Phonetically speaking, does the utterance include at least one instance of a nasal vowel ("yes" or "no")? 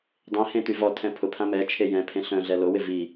yes